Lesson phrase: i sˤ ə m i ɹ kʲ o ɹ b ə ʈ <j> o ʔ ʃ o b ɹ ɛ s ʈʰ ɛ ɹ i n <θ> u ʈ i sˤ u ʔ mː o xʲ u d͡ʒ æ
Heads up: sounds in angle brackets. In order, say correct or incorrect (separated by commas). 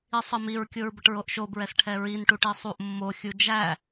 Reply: incorrect, incorrect